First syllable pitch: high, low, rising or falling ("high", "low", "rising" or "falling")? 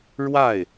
falling